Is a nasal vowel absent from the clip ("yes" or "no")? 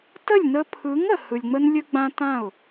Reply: no